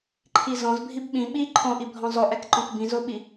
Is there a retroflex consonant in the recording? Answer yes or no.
no